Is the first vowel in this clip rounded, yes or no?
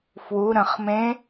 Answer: yes